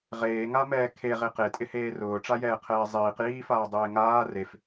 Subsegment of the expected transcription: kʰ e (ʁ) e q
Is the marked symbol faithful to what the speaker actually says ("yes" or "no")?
yes